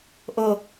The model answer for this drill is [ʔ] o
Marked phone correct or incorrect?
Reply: correct